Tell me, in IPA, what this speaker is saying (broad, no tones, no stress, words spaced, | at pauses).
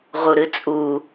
ʁuɾɨt͡sʼu